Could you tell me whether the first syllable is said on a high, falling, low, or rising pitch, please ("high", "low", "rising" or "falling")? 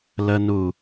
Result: low